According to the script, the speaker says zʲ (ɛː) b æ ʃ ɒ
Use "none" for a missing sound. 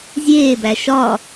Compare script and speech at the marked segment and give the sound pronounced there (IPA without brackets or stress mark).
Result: eː